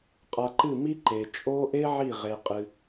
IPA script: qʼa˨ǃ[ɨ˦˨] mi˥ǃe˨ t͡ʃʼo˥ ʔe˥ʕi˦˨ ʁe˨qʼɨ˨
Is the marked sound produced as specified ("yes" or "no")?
yes